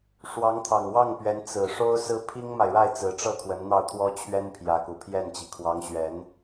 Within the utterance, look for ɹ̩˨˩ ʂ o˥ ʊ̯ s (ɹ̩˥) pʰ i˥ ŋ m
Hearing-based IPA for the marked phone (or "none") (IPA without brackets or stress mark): ɹ̩˥